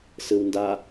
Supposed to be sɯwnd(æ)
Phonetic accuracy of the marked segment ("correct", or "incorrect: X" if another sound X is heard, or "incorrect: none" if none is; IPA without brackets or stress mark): incorrect: a